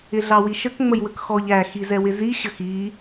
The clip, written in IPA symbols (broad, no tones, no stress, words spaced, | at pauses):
ɪɮɑwiʃək ŋ͡məjwəkxɔʎ æ xizɛwɪzi ɕəxi